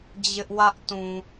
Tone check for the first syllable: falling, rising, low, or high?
high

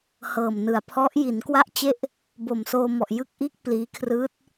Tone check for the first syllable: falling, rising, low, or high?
low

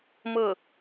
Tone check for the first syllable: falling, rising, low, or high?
falling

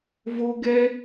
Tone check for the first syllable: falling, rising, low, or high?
high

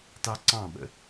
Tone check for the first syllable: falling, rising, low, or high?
high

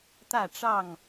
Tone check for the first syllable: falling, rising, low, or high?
falling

